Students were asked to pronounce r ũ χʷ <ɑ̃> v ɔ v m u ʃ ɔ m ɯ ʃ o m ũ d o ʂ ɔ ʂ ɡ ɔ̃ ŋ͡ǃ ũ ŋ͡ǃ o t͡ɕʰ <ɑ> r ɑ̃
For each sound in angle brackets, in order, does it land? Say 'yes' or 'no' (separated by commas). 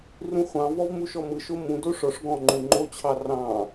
yes, yes